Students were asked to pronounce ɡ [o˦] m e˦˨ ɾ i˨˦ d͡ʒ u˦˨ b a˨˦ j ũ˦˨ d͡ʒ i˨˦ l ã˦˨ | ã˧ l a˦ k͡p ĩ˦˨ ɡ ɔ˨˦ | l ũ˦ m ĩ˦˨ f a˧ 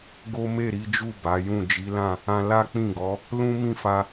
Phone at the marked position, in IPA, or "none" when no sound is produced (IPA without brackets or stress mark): o˦